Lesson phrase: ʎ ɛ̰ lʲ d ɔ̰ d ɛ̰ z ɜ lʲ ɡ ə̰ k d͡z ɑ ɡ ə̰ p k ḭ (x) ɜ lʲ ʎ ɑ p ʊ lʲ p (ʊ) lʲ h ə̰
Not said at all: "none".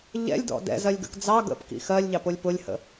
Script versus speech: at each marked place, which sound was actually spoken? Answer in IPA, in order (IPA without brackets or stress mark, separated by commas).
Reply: x, ʊ